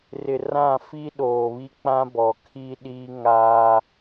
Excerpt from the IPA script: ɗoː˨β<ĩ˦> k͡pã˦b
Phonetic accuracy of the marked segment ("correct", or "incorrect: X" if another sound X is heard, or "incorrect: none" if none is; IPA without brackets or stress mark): incorrect: i˦